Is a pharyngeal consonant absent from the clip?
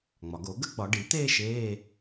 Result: yes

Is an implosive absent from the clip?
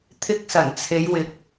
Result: yes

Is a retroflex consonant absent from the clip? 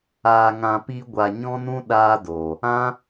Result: yes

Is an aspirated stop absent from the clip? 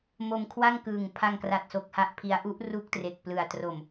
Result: no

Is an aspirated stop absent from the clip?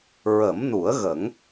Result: yes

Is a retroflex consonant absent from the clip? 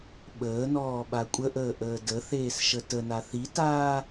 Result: yes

